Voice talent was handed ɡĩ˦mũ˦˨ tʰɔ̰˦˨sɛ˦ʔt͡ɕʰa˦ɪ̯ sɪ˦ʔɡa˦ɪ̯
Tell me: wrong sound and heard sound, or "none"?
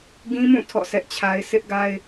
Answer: none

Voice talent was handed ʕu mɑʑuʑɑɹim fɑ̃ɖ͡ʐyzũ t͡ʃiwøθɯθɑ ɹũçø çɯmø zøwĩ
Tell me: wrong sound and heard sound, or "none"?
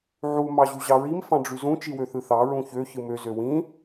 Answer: none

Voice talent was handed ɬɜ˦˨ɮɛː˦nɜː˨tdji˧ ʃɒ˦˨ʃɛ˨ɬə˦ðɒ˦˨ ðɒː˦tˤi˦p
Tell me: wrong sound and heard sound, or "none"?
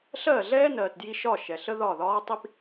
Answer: none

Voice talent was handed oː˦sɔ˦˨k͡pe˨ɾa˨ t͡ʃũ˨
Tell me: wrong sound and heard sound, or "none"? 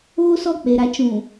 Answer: none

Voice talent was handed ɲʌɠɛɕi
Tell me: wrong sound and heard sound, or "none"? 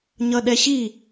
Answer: ɠ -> ɗ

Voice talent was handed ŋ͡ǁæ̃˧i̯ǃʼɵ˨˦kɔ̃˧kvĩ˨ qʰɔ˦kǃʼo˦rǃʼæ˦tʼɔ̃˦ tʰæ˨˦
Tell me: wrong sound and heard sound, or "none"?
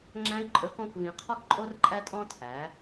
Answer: none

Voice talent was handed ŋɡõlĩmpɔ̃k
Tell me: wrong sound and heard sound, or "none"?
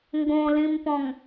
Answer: k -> ŋ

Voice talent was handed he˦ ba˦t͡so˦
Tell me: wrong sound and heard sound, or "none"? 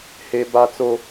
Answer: none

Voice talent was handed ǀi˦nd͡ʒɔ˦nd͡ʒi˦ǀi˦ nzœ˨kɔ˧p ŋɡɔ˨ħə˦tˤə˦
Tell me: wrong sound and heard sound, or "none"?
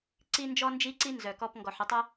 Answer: none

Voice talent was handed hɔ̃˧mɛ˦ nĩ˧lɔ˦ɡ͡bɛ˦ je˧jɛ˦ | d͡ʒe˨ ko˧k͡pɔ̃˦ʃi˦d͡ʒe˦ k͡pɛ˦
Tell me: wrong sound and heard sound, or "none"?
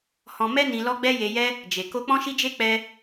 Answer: none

